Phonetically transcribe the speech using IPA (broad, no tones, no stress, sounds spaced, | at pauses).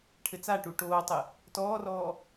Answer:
ʈʰ ɘ t͡s a ʈ u ʈ oː tˤ ɘ | t ɔː r ɔː